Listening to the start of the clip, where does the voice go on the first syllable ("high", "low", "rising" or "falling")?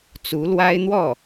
rising